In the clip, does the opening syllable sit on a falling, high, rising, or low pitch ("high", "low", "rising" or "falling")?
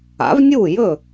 rising